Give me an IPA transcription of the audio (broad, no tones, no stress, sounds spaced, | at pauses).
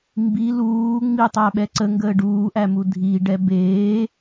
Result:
m b i l uː ŋ͡m i tˤ æ ɓ ɛ ǀ ə ŋ ɡ əː ɖ uː ʔ æ m u dʱ i ɖ ɛ b eː